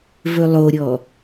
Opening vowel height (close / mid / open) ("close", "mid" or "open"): mid